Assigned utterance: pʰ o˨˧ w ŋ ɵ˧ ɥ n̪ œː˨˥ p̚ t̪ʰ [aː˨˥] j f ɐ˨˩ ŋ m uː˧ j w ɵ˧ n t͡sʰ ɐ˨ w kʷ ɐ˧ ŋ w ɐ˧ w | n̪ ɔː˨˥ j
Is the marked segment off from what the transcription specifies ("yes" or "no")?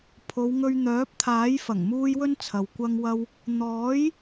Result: no